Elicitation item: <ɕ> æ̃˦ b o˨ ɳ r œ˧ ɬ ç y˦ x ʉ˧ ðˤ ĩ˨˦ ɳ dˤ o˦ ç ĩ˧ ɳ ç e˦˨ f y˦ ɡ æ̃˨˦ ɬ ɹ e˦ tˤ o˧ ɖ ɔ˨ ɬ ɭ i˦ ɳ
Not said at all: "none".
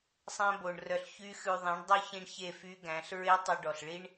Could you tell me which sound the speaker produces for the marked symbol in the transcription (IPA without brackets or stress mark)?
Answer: sˤ